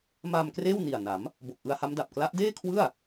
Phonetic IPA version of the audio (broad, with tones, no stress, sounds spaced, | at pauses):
m aː˧ m k r eː˥˩ w n i˨˩ a̯ n a˩˦ m | b o˨˩ k̚ ʔ ɯ˧ a̯ h a˦˥ m d a˨˩ p̚ k l a˦˥ ʔ d eː˥˩ kʰ w ɯ˥˩ a̯